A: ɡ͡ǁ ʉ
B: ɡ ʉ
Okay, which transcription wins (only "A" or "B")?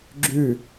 A